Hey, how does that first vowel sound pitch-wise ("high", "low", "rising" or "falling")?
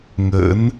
rising